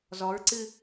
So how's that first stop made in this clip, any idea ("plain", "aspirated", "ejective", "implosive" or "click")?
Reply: click